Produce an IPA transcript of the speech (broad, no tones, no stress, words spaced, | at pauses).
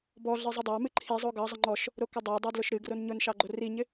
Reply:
bɔɮɨ zˤɨdˤɑmɨ ǃʰizˤo ɡɑzˤʊ ŋ͡ǃɔʃ | ɾokʊdˤɑdˤɑ dlʊʃɾɨɡron ɲʊnʃɑ ɡ͡ǃoriɲɪ